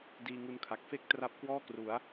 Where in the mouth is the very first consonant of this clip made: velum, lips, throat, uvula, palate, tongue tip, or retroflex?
tongue tip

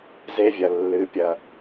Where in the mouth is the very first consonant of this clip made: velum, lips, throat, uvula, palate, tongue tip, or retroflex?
tongue tip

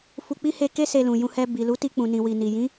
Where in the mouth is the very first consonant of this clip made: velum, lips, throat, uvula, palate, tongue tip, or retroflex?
lips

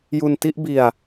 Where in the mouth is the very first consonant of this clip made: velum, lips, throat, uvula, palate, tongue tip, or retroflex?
palate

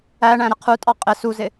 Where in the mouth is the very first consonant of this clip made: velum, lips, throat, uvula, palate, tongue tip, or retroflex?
retroflex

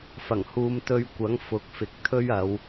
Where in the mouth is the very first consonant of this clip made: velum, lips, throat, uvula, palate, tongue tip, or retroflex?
lips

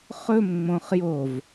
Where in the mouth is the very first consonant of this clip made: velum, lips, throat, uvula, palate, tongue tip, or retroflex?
uvula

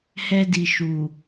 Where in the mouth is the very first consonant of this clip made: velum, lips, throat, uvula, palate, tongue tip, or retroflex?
throat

